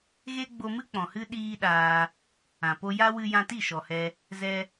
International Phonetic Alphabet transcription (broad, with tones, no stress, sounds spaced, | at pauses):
ɣ e˦ ɡ͡b o˧ m ɨ˦ k͡p ɔ̃˨ h ɨ˦ ɗ iː˦ ɗ aː˧ | ã˨ p o˧ j a˦ w ɨ˧ j ã˧ t i˦˨ ʃ ɔ˨ h ɛ˧ | z ɛ˦